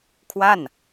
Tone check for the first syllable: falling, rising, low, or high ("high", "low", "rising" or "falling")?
falling